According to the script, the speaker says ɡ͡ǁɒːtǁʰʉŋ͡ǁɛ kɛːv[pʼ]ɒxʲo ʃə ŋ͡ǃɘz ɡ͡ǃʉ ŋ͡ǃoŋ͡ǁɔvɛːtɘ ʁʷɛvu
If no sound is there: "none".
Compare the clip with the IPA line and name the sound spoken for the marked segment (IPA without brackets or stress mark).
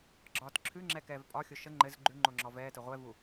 pʼ